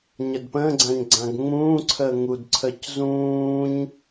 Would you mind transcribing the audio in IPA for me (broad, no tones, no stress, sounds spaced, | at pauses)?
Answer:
ɲ ə d p ə̃ː ɡ͡ǀ ã ɲ ɡ͡ǀ ã ɡ ŋ͡m ũː ǀʰ əː ŋ u d ǀʰ əː c z ũː ɲ